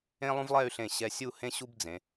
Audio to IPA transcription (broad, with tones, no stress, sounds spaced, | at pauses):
ẽ˥ lˠ ũ˥ v lˠ ɛ˥˧ y̯ ɬ ẽ˧˩ ɕ ɛ˧ sʲ u˥˧ h ẽ˥ ɕ u˥ b d͡z ẽ˩˧